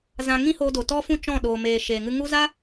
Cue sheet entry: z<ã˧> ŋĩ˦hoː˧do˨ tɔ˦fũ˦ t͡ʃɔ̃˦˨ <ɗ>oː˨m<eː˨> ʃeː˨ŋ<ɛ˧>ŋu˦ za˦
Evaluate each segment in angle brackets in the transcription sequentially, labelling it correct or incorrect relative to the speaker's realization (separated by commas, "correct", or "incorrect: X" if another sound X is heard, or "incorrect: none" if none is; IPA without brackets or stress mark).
correct, correct, correct, incorrect: ɨ˧